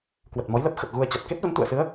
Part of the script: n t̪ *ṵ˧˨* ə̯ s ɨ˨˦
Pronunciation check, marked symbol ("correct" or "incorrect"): correct